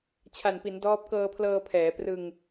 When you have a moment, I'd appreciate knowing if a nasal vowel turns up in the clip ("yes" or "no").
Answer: no